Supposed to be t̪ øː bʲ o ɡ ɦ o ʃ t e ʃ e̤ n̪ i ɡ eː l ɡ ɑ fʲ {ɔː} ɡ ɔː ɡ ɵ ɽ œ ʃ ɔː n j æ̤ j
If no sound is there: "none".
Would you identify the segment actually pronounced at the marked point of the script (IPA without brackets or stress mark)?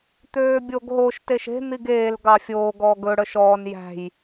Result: oː